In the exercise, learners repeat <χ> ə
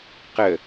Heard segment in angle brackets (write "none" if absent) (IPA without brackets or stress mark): q